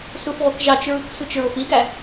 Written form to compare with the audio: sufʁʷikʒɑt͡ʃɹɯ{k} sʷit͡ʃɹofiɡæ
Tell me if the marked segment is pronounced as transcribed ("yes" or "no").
yes